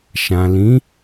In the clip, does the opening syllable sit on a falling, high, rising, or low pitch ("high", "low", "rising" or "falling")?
low